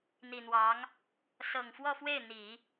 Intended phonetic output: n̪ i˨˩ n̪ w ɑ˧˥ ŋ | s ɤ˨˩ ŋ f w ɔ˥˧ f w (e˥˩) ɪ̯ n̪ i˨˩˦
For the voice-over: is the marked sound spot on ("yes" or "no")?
yes